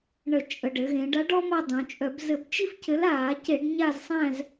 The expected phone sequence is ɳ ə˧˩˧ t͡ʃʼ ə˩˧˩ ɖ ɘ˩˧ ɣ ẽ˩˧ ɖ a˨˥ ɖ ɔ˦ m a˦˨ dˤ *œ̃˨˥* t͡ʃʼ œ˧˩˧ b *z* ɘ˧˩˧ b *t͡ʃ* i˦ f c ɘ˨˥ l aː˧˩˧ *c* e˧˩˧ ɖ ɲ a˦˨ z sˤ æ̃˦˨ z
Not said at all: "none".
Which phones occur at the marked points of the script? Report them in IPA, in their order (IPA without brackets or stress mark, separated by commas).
œ̃˩˧, z, t͡ʃ, c